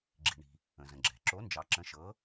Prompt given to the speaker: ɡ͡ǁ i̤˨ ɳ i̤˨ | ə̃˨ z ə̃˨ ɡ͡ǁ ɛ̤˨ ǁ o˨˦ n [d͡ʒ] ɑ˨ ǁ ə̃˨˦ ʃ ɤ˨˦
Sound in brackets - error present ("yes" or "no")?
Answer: no